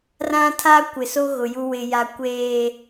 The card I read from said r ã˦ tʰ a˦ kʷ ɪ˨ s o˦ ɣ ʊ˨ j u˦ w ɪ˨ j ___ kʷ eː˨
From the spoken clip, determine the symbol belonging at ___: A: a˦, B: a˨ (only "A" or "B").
B